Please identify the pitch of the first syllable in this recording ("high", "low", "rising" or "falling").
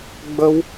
high